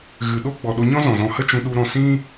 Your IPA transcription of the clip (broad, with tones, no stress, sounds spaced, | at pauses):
ɣ ɨ˨ ɗ o˦ ɡ͡b ɔ˨ ɗ o˧ ɲ ɔ̃˦ z ɔ̃˨ z ɔ̃˧ h ə˦ t͡ʃ ũ˧ ɗ u˧ ɾ ɔ̃˧ s ĩ˦